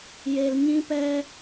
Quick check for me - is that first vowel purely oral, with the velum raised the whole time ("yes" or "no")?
yes